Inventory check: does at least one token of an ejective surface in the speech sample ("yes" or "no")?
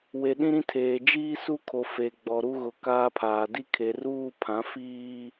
no